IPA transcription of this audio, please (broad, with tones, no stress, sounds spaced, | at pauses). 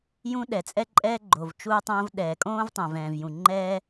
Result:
j ũ˥ ɗ ɛ˩ t͡sʼ ɛ˥ ǃʼ ɛː˥ ɡ͡ǃ o˩ v t͡ʃ uː˥ tˤ õː˥ v ɗ ɛː˩ kʼ õː˥ v tˤ ə̃ː˩ v ɛ̃ː˩ v j ũ˩ ŋ͡ǃ ɛː˥